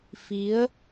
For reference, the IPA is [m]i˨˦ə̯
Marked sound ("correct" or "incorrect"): incorrect